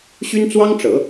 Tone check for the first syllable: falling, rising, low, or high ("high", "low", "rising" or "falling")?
high